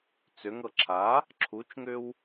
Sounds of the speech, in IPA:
t͡s ʏ ŋ ɤ ǁʰ a | ǁʰ u t͡ʃ ŋ ʏ w

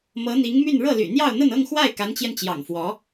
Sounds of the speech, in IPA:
m ɤ˧˥ n̪ i˧˥ ŋ m y˥˧ n ɻ ɤ˥˩ l y̰˨˩ n̪ j ɑ˥˧ ʊ̯ n̪ ə˥˧ n ɤ˥˧ ŋ x w a˥˩ ɪ̯ k a˧˥ n t͡ɕ j ɛ˧ n t͡ɕ j ɑ̰˨˩ ŋ f w ɔ˧˥

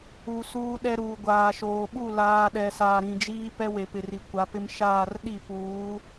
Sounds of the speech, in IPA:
u˨ s uː˦ ɗ ɛ˦ ɾ uː˨ ɡʷ aː˨ ʃ oː˨ ɓ u˦˨ l aː˨ ɗ ɛ˨ s aː˨ ɾ ĩ˨ d͡ʒ iː˦ p ɛ˦ w e˨ p ɪ˨ r i˨ kʷ a˨˦ p ɪ˦ m ʃ aː˦˨ r ɗ i˦˨ p uː˨˦

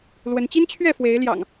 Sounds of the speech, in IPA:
l w ə˨˦ n t͡ɕ i˦ n t͡ɕʰ ɥ ɛ˥˨ f w e˨˦ ɪ̯ l j ɑ̰˨˩ ŋ

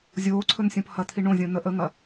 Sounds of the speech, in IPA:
zʲ oː ǀʰ ɵ n sʲ õ p h ɐ t̪ʰ i ɳ õ zʲ õ n ə ʔ ə ŋ ɐ

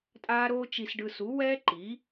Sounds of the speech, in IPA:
tʼ aː˦ ɾ oː˦ t͡ʃ i˧ s ɖ ɯ˧ s u˨˦ w ɛː˦ ǃ i˨˦

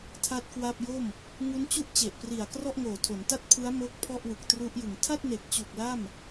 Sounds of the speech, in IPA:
tʰ a˥˩ t̚ k w a˥˩ p̚ j o˥˩ m | ŋ u˦˥ n t͡ɕ u˥˩ ʔ t͡ɕ e˨˩ ʔ p r i˨˩ a̯ k r ɔ˥˩ ʔ ŋ oː˨˩ tʰ o˩˦ n t a˥˩ t̚ pʰ ɯ˦˥ a̯ m o˦˥ k̚ pʰ ɔ˥˩ ʔ w ɯ˨˩ k̚ t r u˦˥ ʔ j ɯ˨˩ ŋ tʰ a˥˩ t̚ n e˨˩ k̚ t͡ɕ u˨˩ k̚ l a˥˩ m

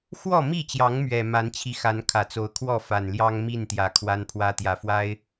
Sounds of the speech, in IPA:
x w ɔ˥˨ m i˥˨ t͡ɕ j ɑ˨˦ ŋ m ɥ ɛ˨˩ m a˨˦ n t͡ɕʰ i˨˦ x a˨˦ n kʰ ä˨˩ t͡s o˨˦ ʊ̯ kʰ w ɔ˥˨ f a˨˩ n l j ɑ˦ ŋ m i˥˨ n t̪ j ä˨˩ kʰ w a˦ n pʰ w ä˦ t̪ j ä˨˩ f w a˦ ɪ̯

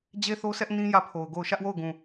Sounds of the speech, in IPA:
d͡ʑ e˦ θ o˦ s ɛ˦ ʔ n ĩ˦ j ä˦˨ pʰ o˨ ʊ̯ ɡ o˦˨ ʊ̯ ʃ ä˦ ʔ w o˦˨ ʊ̯ ɡ ũ˨

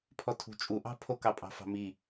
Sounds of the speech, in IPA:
pʰ ɔ tʰ ṳ t͡ʃʼ u ʔ ɑ̤ pʰ o k ɑ pʼ ɑ̤ f ɑ̤ m i

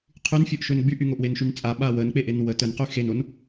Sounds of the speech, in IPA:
qʰ y n fʲ o ʔ ʃ ø n ɡ͡b y ʔ y ŋ o ʔ w e n ʃ y n t͡sʼ a ɓ a w ə n k͡p e ʔ e n w ə t ə n q y x e n o n

